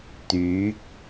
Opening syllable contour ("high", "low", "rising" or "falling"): rising